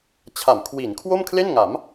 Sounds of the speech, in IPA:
t͡ɕʰa˩˦mkʰwi˩˦n kʰwo˥˩mkʰle˥˩nŋa˩˦m

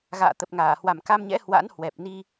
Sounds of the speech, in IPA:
ɣa̰ː˧˨t̪ə˨˩p̚ŋaː˧˩ hwa˨˩mka˧mɲɛ̰˧˥ hwa̰˧˥nhwɛ˨˩p̚ni˧

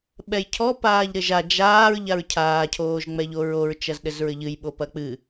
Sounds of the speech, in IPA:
ɓɛjcʰɔ paːʎɾɘʒa d͡ʒaːɹ ʎaɹcʰaː cʰoːʒŋ͡mɛʎoɹoɹ t͡ʃɐzɗɘzɹɘʎɨj ɓopɐk͡pɨ

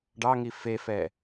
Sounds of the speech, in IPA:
ɖɑŋi fefɛ

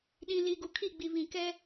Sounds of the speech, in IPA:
ɗĩ˨ li˨ɡu˨kʰi˦˨ ɡ͡bi˨βĩ˨ kɛ˦

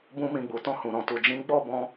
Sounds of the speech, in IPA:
bũ˦mĩ˧ɡ͡bu˨ tɔ̃˧hũ˨ɾɔ̃˨tu˨ d͡ʒĩ˨˦ɡ͡bɔ˦˨bɔ̃˧

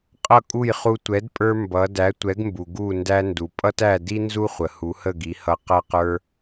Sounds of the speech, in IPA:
qʼʌ˥˩kʼu˥˩jχu˧ tʷɛ˩˥dpʼə˞˧ mbʌ˩˥ dæ˩˥tʷɛ˩˥ɡmbu˩ ɡu˥˩ ndæ˧ndu˩ pʼʌ˥tæ˥˩ di˥ nzu˥χʷə˩hu˩˥hə˥˩ ɡi˩˥hʌ˧ qʌ˥qə˞˥

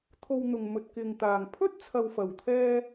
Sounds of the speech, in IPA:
t̪ʰo˧wn̪ʊ˨ŋ mɵ˨t̚kɪ˨ŋt̪aː˨ŋ pʰɵ˥t̚ t͡sʰɐ˨wfɐ˨˩wt̪ʰɛː˧

